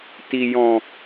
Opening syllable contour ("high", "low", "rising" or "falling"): low